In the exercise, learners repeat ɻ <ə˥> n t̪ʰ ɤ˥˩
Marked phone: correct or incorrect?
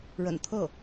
incorrect